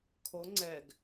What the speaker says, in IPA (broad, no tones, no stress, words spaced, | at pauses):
kʰo ŋ͡ǀɛɡ